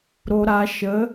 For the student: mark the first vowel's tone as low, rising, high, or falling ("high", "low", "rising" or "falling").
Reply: low